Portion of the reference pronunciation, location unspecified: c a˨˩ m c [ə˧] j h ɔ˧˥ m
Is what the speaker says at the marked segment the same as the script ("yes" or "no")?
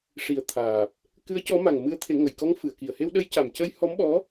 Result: yes